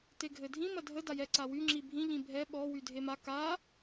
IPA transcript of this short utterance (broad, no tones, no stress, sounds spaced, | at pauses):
t e ɡʱ ɘ dʱ ĩ m ɐ dʱ ə d a j ɛ ǀ a w y ŋ͡ǁ i bʱ ĩ ʎ ĩ bʱ ɛ ɓ ɔ w y dʱ e m a k a